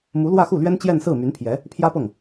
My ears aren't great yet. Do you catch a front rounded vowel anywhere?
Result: yes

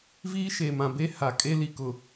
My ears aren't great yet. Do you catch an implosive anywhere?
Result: no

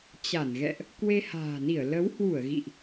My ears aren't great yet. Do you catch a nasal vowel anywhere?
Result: no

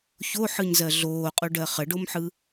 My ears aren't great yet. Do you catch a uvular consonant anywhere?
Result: yes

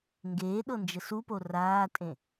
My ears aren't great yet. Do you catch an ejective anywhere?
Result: yes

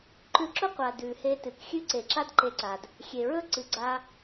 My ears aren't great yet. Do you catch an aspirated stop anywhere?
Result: no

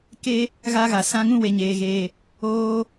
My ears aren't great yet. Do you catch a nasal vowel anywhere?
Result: yes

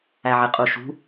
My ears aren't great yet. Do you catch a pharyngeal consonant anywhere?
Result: yes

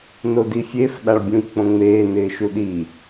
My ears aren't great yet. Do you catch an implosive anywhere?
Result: yes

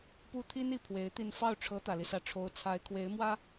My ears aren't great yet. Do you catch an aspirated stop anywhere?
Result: yes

